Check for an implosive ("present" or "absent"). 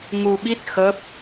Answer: present